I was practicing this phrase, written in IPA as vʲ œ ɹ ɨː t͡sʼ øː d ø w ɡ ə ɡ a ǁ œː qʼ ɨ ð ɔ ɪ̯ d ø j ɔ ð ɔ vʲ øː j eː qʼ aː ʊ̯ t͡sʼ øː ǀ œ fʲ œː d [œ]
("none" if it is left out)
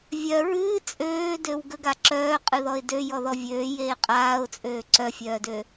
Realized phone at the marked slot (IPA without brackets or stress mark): ø